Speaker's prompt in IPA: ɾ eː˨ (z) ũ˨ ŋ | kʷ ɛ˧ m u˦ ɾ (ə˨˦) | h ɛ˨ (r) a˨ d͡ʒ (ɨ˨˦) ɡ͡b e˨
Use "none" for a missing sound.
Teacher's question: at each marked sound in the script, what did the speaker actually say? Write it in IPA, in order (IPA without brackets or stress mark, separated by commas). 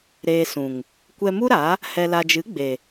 s, a˨˦, l, ɨ˨˦